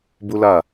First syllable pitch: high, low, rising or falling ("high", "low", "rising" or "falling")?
high